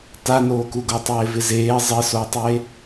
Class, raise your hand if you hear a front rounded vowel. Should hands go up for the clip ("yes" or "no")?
no